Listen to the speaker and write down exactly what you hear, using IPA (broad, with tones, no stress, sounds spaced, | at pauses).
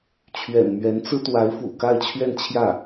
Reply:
t͡ɕʰ ɥ ɛ̰˨˩ n m ɥ ɛ˧˥ n t͡s ɹ̩˥ t̪ w a˧˥ ɪ̯ f ṵ˨˩ k a˥˧ ɪ̯ t͡ɕʰ ɥ ɛ˥˧ n t͡ɕʰ j ä˥˩